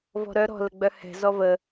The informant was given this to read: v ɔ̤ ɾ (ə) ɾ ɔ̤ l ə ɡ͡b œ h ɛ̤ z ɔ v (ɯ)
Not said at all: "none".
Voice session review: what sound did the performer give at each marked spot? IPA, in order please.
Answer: œ, ə

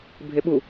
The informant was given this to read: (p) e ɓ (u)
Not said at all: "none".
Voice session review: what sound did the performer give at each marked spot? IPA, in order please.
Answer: bʱ, u

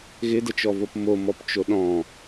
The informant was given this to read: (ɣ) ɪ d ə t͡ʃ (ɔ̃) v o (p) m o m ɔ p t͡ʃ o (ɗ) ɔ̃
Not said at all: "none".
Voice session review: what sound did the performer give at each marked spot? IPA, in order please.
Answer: ɣ, ɔ, p, ɗ

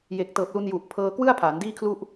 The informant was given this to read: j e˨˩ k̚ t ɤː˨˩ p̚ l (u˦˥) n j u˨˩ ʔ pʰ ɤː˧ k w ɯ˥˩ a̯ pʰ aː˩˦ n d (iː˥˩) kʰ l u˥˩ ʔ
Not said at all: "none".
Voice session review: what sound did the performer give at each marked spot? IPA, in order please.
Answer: u˧, iː˥˩

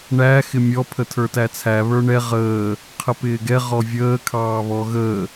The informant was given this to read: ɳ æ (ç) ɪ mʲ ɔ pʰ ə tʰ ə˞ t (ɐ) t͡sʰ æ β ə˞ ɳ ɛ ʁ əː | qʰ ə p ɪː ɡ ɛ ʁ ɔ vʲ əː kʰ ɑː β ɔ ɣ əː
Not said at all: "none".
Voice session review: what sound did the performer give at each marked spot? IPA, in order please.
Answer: x, æ

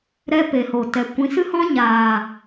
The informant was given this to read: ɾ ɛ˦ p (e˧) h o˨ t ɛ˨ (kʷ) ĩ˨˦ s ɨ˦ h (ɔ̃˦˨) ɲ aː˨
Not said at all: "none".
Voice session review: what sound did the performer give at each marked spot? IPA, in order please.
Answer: e˨, kʷ, ɔ̃˦

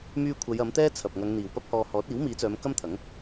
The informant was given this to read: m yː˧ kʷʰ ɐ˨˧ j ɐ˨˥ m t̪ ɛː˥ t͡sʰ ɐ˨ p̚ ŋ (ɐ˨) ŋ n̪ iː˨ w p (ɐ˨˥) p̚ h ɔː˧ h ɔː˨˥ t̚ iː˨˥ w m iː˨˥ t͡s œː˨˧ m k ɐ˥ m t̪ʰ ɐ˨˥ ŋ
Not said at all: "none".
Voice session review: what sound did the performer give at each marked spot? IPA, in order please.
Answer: ɐ˨˧, ɐ˥

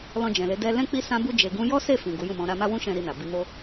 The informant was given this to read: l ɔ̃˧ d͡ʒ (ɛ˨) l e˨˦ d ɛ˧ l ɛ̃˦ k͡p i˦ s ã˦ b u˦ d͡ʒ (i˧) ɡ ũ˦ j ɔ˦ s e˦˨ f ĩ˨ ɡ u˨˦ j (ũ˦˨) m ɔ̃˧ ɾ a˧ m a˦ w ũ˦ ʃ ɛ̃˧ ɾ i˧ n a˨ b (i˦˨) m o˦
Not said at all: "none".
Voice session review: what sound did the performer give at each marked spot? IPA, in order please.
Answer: ɛ̃˨, e˧, ũ˦˨, i˧

